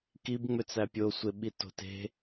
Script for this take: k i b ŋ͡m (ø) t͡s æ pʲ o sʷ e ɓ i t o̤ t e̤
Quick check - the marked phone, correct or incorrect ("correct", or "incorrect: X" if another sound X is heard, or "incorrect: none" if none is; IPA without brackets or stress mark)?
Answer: correct